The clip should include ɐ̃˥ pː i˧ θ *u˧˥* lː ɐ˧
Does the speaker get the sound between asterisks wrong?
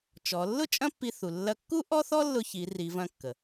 yes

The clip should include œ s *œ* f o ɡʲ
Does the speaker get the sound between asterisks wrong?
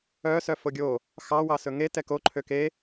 no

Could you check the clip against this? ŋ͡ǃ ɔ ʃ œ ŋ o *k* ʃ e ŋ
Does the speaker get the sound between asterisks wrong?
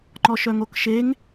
no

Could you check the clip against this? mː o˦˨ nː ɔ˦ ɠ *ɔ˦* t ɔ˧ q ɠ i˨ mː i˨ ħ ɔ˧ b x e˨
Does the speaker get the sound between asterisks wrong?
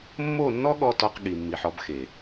yes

